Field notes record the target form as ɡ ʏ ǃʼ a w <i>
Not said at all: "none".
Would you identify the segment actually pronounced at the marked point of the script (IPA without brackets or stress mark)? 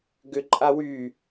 y